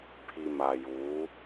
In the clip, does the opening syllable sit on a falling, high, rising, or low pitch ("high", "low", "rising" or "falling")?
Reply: low